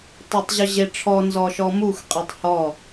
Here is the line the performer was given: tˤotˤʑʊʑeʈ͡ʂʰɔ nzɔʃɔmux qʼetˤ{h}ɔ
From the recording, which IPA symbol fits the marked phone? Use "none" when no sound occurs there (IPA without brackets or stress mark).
h